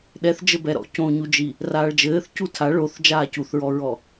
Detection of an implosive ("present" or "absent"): present